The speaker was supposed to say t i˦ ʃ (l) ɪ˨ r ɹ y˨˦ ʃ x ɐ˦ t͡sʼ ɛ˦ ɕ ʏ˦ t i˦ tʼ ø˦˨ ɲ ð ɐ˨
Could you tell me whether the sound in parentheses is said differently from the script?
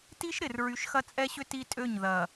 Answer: yes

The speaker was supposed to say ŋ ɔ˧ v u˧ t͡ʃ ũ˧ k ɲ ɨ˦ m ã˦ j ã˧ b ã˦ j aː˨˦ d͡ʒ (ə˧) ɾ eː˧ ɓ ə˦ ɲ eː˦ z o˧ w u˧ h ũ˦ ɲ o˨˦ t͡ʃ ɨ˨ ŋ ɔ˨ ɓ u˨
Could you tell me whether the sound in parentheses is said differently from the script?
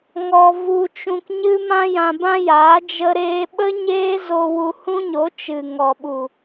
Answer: no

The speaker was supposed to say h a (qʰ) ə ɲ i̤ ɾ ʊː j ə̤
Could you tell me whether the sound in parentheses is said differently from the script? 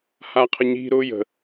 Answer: no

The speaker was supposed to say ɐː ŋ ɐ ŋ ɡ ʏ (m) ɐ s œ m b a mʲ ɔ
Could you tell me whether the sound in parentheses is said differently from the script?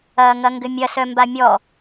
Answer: yes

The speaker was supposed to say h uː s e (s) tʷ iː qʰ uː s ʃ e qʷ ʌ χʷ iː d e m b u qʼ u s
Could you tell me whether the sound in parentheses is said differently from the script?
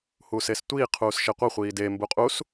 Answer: no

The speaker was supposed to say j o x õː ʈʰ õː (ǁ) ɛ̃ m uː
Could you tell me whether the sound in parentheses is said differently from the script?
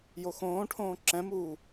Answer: no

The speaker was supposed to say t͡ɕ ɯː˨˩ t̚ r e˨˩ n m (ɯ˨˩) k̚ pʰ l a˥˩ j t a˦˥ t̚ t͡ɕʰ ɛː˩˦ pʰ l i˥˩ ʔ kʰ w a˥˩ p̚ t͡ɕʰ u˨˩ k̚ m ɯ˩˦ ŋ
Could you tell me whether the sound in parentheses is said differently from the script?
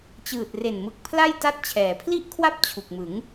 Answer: no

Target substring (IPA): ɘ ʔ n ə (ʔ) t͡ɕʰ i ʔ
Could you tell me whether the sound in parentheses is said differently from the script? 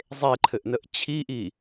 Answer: no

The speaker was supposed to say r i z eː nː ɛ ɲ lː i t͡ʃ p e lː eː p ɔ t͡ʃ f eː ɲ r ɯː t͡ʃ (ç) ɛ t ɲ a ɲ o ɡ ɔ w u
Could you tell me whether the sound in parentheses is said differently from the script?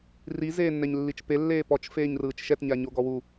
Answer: yes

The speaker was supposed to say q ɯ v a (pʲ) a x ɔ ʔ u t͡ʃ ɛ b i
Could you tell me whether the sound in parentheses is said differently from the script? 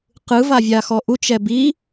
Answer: yes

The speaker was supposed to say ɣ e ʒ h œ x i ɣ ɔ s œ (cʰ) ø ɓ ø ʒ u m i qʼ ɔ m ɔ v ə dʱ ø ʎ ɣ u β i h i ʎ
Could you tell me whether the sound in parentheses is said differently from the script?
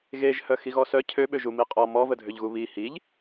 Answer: no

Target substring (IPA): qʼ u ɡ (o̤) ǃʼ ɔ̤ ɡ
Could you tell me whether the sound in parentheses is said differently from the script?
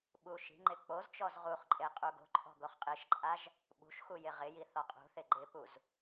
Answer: no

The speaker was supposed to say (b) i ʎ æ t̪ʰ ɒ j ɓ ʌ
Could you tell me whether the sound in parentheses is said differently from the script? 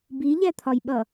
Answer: no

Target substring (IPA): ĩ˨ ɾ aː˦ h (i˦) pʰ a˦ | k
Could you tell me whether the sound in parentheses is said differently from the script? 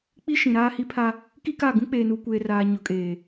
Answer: no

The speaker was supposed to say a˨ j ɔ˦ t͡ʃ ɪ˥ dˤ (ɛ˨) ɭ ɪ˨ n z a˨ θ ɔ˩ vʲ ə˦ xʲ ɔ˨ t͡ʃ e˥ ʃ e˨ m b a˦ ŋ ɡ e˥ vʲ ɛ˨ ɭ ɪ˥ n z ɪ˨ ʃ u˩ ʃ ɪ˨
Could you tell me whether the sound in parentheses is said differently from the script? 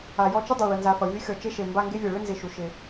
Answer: no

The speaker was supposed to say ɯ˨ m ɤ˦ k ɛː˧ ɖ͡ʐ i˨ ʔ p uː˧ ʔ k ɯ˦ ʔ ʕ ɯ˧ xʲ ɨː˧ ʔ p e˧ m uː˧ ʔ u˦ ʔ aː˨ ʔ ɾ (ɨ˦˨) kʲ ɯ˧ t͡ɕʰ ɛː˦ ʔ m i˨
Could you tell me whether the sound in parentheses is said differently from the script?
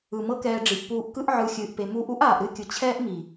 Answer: no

